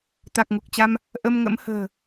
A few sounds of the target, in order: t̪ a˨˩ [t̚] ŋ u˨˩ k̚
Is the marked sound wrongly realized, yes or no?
yes